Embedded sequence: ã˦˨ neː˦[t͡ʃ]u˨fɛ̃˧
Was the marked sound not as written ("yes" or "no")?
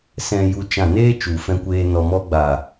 no